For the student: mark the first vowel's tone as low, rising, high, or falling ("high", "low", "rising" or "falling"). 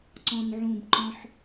low